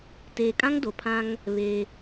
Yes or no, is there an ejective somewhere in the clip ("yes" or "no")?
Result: yes